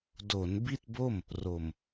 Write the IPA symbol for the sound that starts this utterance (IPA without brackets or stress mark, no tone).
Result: d